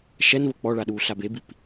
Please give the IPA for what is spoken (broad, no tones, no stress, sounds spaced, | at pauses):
ʃ ɛ n v ɤ k͡p ɔ ɭ a ɗ uː ɬ a b e b i p